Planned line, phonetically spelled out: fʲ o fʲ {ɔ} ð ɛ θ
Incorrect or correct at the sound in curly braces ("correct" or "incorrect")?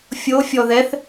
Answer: correct